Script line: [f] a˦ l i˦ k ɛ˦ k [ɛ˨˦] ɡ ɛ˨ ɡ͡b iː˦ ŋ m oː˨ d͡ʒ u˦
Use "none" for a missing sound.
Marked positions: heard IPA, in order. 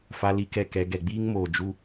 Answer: f, ɛ˨˦

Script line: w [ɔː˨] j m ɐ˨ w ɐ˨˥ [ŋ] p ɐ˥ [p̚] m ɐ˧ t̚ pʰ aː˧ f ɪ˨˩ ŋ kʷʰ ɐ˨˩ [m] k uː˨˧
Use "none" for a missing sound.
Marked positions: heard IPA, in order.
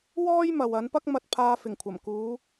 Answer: ɔː˥, n, k̚, m

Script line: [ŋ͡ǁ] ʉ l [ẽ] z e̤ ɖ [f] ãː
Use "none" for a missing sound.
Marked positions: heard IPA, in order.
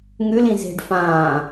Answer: ŋ, ĩ, f

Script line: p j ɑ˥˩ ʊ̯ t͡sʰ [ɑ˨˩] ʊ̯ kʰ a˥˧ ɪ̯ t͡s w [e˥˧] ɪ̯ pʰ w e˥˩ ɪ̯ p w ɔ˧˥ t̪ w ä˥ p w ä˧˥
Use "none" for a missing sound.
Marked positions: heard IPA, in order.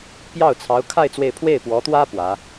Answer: ɑ˧˥, e˥˧

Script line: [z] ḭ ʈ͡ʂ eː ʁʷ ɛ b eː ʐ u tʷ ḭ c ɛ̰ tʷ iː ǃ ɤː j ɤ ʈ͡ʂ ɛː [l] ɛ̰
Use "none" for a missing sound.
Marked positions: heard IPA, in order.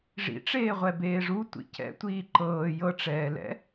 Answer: ʐ, l

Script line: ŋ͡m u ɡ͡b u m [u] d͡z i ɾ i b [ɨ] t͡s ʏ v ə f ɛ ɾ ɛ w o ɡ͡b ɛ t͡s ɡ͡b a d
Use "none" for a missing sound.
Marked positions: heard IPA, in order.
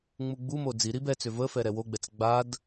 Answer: o, ɛ

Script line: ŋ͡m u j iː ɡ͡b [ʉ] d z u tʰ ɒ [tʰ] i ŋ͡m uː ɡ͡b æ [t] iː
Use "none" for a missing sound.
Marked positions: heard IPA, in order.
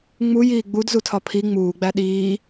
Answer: u, pʰ, ɗ

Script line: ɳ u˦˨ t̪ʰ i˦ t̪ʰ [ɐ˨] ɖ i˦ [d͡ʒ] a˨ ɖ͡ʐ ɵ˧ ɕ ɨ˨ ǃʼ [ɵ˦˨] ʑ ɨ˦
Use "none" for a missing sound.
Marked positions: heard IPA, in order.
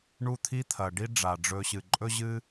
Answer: ɐ˨, ɖ͡ʐ, ɵ˦

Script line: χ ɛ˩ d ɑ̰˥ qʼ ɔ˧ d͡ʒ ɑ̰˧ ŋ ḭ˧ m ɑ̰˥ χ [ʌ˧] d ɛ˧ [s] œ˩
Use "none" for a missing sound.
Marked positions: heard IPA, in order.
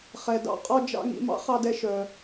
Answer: ɑ˧, ʃ

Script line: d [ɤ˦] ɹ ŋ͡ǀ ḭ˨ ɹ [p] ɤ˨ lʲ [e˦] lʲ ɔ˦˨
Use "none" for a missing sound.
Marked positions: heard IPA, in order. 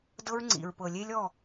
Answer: ɤ˦, p, e˦

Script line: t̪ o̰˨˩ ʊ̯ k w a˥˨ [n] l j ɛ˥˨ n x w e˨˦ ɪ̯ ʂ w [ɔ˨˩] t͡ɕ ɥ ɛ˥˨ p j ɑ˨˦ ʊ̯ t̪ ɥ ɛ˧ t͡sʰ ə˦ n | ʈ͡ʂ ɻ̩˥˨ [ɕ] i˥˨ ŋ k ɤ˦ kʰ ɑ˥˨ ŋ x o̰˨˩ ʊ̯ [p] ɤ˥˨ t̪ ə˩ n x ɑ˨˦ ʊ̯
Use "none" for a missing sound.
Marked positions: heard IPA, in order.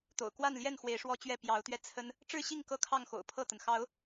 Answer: n, ɔ˦, ɕ, pʰ

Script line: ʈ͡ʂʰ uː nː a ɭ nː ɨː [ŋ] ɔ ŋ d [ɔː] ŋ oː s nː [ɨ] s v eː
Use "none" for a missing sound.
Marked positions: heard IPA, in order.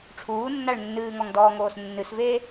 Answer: ŋ, ɔː, ɨ

